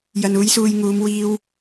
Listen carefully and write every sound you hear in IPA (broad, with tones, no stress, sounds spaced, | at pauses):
j ɐ˨ n uː˨˥ j s uː˨ j ŋ uː˨˧ m w iː˧ w